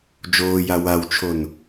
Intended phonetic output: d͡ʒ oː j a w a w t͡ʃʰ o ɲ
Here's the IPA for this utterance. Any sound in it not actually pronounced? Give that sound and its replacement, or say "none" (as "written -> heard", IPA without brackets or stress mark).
ɲ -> n